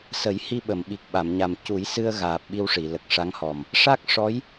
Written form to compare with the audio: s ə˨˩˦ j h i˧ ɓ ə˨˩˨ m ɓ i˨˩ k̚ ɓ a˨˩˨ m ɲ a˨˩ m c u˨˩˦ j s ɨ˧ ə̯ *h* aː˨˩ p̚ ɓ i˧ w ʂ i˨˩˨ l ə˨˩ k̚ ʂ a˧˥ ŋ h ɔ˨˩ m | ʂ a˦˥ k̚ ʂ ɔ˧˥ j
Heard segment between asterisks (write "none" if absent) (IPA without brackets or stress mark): ɣ